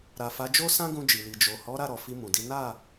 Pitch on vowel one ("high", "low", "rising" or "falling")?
low